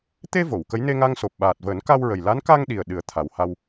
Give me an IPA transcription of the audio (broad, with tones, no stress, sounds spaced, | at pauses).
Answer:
t̪ e˧ v o˨˩˨ w k ə˧˥ j n e˧ ŋ a˧ ŋ s o˨˩ p̚ ɓ aː˨˩ t̚ v əː˨˩˦ n k a˧ w ɹ ə˨˩ j l a˧˥ n k a˧ ŋ ɗ i˨˩ ə̯ ɗ ɨ˨˩˦ ə̯ t̪ʰ a˨˩ w h a˧ w